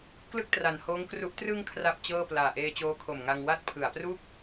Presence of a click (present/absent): absent